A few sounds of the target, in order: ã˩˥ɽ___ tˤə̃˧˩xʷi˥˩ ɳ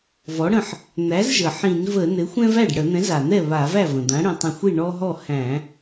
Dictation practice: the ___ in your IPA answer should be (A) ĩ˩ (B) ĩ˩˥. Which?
A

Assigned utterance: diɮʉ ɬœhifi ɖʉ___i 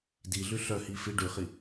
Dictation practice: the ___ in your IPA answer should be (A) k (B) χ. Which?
B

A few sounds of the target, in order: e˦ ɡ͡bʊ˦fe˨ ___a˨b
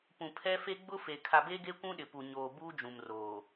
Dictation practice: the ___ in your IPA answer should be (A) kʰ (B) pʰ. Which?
A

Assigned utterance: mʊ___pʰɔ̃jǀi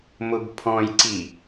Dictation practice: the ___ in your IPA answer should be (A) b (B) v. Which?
A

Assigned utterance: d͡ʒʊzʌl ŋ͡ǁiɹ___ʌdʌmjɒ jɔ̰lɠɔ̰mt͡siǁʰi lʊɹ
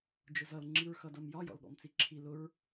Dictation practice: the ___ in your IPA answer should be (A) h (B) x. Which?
B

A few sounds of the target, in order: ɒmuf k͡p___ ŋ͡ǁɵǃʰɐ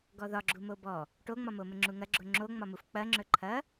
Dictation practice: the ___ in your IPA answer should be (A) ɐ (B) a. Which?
A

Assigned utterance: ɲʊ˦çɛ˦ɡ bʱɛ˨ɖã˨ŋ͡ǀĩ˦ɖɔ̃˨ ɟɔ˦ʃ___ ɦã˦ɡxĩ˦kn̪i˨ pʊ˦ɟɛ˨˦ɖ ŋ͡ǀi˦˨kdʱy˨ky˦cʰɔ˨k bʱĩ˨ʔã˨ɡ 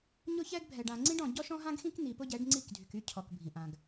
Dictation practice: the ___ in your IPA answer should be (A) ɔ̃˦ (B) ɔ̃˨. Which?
A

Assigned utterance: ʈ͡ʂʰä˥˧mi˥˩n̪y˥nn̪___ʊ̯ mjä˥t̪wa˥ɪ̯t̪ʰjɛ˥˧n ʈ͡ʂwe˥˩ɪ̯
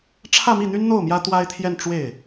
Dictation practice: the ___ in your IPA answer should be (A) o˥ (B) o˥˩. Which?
B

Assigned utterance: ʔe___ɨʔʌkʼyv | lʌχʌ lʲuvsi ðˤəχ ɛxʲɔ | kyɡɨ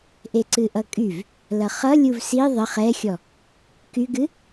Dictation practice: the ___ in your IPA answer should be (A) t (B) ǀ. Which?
B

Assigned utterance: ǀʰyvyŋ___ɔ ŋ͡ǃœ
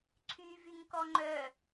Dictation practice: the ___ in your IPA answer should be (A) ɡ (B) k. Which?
B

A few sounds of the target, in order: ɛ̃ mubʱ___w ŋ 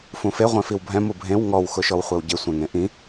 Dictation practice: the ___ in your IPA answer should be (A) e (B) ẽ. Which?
B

